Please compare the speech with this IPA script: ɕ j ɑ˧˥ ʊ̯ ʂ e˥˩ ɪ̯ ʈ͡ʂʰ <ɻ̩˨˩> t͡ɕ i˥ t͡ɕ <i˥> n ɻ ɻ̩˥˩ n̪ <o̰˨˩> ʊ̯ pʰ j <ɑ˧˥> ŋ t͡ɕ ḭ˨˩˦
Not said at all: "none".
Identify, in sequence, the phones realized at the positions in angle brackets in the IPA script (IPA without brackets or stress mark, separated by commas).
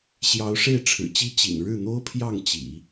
ɻ̩˨˩, ḭ˨˩, o˥, ɑ˥˩